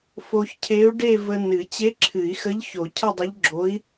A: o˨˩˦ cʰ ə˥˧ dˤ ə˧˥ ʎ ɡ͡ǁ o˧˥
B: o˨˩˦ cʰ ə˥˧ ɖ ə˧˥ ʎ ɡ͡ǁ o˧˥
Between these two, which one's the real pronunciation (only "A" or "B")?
A